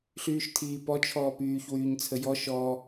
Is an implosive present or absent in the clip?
absent